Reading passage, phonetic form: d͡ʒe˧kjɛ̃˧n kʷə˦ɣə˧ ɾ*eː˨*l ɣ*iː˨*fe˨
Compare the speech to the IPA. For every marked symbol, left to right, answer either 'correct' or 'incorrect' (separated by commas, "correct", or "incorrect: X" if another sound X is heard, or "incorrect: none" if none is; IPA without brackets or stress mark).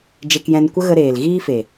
correct, incorrect: iː˦